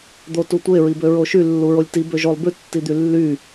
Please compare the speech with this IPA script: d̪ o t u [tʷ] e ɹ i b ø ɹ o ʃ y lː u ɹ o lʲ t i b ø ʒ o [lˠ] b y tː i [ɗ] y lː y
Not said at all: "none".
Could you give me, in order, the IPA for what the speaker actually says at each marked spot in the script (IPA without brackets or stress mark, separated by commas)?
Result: tʷ, lˠ, d̪